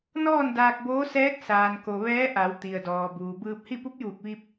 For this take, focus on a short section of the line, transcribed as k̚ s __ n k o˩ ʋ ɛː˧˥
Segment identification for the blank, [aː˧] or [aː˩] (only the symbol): aː˩